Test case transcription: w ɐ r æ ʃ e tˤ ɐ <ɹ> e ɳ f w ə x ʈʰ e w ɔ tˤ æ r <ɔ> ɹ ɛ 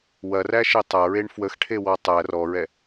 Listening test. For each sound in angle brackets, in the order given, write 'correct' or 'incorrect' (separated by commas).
correct, correct